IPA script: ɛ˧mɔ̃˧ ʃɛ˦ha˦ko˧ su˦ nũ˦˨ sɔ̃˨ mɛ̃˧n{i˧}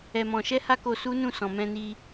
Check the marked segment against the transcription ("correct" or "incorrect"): correct